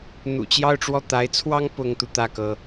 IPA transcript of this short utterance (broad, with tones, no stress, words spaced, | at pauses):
n̪ṵ˨˩t͡ɕjɑ˥˧ʊ̯ʈ͡ʂwɔ˥˩ t̪a˧˥ɪ̯t͡sʰwɑ˥ŋ pʊ˥ŋt̪u˨ t̪ä˥˩kɤ˩